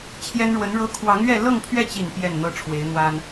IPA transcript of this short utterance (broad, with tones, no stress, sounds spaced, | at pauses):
t͡ɕʰ j ɛ˥ n ɻ w ə˧˥ n ɻ ɤ˥ kʰ w ɑ˧˥ ŋ ɥ ɛ˥˧ l ɤ˥˧ ŋ pʰ ɥ ɛ˥˩ t͡ɕ i˨˩ n p j ɛ˥˩ n n̪ ɤ˥ ʈ͡ʂʰ w e˧˥ ɪ̯ n̪ w a˥ n